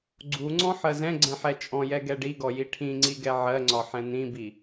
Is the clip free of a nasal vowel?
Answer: no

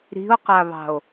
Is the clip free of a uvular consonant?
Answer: no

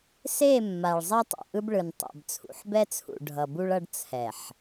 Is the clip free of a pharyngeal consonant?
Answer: no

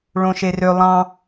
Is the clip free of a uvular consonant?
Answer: yes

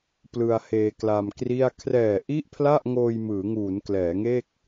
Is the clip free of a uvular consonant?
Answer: yes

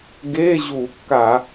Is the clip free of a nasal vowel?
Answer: yes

